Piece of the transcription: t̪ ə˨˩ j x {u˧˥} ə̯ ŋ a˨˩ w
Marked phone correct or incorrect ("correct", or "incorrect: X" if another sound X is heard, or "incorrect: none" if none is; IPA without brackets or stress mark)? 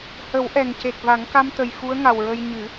correct